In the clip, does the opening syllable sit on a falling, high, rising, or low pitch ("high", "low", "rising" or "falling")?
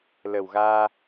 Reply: low